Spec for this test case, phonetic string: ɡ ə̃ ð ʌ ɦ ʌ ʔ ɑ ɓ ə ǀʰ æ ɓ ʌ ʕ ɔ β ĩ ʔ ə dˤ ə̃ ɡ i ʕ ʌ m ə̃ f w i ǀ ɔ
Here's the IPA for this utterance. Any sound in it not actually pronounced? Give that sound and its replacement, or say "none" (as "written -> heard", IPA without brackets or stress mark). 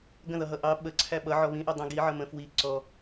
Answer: none